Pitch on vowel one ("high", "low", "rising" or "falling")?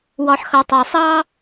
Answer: rising